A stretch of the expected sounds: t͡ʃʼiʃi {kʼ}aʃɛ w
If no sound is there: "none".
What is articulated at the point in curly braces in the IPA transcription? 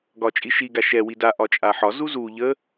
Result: ɡ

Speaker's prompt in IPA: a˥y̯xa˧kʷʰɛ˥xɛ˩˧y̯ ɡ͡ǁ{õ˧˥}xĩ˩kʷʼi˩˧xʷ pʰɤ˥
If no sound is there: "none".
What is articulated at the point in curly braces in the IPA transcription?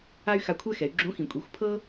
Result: õ˧˥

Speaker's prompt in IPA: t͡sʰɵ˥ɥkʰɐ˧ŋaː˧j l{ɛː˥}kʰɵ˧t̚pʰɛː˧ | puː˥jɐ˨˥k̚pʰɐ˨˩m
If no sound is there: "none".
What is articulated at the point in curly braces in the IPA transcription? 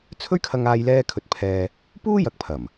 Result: ɛː˥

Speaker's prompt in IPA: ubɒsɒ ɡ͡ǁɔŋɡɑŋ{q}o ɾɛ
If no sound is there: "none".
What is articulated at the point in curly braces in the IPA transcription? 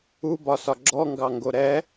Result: ɡ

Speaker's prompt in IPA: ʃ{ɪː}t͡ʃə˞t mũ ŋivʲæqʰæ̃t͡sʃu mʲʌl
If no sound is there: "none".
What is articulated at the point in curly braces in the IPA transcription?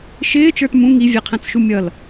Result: ɪː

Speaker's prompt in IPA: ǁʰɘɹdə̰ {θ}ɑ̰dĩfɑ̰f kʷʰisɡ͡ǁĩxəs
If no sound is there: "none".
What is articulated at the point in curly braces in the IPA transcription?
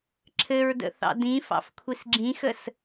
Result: θ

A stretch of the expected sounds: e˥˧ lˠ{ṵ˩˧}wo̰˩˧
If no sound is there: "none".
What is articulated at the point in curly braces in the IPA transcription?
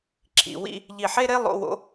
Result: o̰˩˧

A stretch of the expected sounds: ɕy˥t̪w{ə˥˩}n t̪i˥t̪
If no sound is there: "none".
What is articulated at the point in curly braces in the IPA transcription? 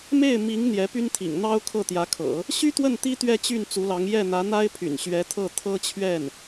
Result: ə˥˩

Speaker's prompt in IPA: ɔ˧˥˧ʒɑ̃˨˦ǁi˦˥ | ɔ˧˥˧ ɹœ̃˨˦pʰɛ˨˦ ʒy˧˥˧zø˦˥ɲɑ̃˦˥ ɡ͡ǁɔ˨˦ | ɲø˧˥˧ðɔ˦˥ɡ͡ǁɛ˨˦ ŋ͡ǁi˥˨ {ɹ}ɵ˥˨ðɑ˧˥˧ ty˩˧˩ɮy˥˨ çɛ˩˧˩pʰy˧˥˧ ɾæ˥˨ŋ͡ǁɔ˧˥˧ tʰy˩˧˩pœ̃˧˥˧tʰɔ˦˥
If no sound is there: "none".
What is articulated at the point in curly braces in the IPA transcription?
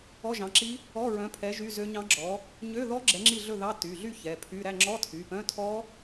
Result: ɮ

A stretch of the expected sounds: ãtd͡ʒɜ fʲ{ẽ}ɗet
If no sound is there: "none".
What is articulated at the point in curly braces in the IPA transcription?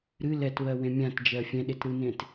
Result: ɛ̃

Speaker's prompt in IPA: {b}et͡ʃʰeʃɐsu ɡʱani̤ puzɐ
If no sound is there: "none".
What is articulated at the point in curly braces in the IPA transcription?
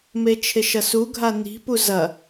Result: m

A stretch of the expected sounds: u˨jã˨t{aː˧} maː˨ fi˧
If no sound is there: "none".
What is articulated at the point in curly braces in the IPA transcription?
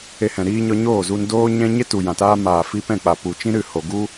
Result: aː˧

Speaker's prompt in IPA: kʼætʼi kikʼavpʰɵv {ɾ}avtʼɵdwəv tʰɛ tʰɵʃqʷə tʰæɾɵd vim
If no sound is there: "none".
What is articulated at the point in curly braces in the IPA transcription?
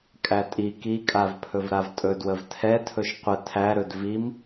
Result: ɾ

